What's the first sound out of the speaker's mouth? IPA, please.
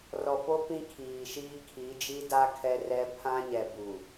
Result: r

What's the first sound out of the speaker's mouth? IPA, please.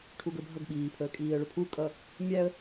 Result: ʈʰ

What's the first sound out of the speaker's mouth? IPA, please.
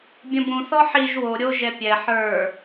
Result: bʲ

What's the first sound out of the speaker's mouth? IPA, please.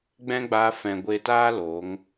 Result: ɡ͡b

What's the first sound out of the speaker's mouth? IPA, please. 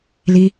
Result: l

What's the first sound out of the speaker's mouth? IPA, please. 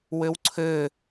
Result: w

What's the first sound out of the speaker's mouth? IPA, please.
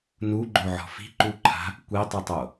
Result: n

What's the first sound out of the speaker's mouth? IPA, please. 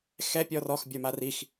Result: x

